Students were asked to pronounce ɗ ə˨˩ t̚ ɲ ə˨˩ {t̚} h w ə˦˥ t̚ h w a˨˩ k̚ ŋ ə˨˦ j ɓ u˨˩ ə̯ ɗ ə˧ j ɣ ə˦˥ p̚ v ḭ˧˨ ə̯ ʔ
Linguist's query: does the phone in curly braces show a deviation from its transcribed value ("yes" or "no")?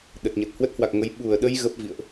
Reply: no